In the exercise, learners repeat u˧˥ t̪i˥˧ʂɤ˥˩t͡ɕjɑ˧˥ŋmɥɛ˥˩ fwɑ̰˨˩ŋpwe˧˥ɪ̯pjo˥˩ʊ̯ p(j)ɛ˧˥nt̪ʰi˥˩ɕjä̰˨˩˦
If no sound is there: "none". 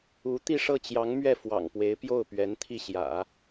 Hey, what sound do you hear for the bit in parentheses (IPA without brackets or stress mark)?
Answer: ɥ